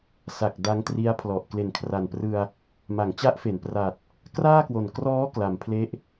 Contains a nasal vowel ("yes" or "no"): no